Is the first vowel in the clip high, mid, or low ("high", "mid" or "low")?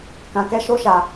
low